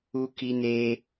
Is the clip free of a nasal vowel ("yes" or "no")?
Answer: yes